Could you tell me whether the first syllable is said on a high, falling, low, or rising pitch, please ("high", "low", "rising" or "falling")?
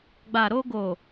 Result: low